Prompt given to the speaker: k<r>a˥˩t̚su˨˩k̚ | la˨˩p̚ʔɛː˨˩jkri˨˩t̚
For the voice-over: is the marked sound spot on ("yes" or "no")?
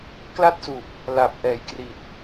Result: no